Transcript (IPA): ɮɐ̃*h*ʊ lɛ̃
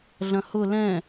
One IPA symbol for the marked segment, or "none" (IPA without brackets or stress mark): h